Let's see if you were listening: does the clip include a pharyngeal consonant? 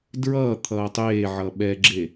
yes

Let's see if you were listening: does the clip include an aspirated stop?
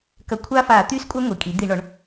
yes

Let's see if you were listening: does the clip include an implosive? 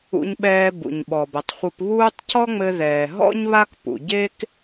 yes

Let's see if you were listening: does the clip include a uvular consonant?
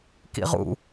yes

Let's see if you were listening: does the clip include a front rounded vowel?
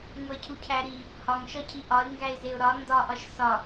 no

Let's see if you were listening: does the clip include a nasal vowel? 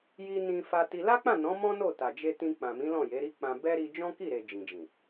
yes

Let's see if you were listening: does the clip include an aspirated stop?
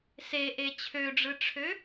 yes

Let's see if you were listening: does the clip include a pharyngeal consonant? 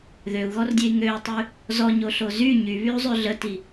no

